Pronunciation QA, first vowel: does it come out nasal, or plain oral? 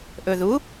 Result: oral